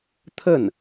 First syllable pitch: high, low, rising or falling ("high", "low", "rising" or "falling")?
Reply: falling